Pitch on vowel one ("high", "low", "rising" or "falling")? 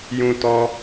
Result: high